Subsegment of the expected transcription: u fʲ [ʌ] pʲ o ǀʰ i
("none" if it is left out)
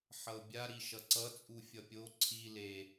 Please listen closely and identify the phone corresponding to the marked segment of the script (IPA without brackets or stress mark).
ʌ